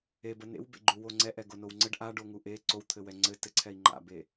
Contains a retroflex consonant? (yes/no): yes